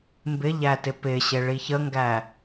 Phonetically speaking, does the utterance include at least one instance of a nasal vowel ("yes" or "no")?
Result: no